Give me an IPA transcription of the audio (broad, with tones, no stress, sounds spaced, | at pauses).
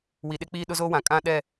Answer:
w i˨ ɗ e˦ k͡p iː˦ ɗ ʊ˦ z o˦ w ã˨ kʼ ã˦ ɗ ɛ˦˨